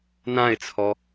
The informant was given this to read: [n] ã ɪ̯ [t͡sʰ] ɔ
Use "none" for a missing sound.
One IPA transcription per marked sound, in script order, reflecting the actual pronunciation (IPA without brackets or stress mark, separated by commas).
n, t͡sʰ